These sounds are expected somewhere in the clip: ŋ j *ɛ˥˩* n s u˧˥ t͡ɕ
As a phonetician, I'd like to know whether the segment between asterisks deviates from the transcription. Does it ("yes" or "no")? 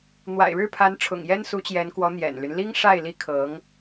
yes